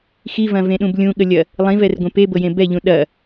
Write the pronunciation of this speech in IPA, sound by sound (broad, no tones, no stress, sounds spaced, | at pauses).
x i v ɐ̃ v ẽ ɗ ũ b lʲ ũ ɠ ə lʲ ɐ | lˠ ĩ v ɛ r ɡʷ ẽ p e b ɤ j ẽ b ɛ ʎ ũ ɗ ɐ